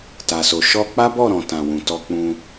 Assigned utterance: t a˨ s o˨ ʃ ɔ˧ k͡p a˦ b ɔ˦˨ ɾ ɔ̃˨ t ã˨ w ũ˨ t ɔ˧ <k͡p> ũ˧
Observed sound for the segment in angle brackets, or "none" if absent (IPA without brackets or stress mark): k͡p